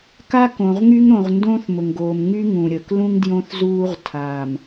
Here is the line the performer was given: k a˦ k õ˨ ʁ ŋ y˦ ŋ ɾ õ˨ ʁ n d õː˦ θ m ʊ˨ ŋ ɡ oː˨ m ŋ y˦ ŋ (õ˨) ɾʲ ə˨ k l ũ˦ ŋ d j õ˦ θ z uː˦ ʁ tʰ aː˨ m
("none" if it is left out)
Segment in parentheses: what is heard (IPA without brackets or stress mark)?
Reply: ũ˨